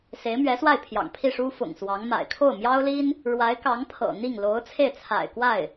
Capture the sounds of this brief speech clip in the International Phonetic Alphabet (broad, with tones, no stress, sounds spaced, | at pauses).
s e˧˥ ɪ̯ m ɥ ɛ˧˥ s w a˥˩ ɪ̯ pʰ j ɑ̰˨˩ ŋ pʰ i˥˩ ʂ u˥ f ʊ̰˨˩ ŋ s w ɑ˧˥ ŋ m a̰˨˩ ɪ̯ kʰ o˥˩ ʊ̯ m j ɑ˥ ʊ̯ l i˥ n | ɻ w a˧˥ ɪ̯ k ɑ˧˥ ŋ pʰ ɤ̰˨˩ n̪ i˥˩ ŋ l o˧˥ ʊ̯ t͡sʰ e˥˩ ɪ̯ t͡sʰ a̰˨˩ ɪ̯ k w a˥˩ ɪ̯